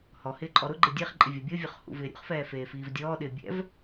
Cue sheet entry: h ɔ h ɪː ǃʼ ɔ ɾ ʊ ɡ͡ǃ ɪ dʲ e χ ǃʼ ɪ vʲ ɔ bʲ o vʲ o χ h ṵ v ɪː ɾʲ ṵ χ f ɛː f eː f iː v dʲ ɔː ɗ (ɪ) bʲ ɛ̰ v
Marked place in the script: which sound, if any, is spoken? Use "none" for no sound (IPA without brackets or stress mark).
ɪː